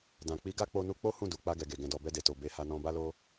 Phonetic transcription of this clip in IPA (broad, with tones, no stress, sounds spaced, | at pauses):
d ã˨ k͡p i˨˦ ɡ a˦˨ k͡p o˧ n u˧ k͡p o˦ h ũ˦˨ d u˨ k͡p a˧ ɡ ɛ˨ ɡ e˨ ɡ ɛ̃˨ d ɔ˨ b ɛ˧ d e˨ t o˨ b e˨˦ h a˧ n ɔ̃˧ b a˦ l o˦